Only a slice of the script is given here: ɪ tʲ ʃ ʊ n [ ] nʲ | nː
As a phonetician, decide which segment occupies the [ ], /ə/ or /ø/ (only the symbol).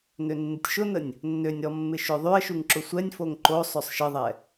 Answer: ə